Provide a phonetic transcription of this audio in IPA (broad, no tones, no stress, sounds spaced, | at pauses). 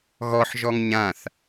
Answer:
ɣ ɔ ħ ʒ ɔ ŋ ɲ ã θ